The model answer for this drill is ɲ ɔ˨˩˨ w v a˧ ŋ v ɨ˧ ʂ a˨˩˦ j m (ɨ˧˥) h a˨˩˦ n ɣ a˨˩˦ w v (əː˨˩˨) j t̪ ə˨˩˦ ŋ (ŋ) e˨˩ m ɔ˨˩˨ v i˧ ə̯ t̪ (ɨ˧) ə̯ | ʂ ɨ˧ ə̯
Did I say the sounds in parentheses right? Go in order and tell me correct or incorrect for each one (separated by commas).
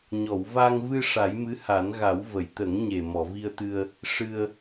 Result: correct, incorrect, incorrect, correct